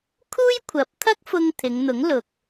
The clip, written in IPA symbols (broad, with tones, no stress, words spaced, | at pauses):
kʰuː˥jkʷʰɐ˨˥p̚t̪ʰɐ˥k̚fʊ˧ŋ t̪ʰɪ˨˧ŋn̪ʊ˨˥ŋlʊ˨k̚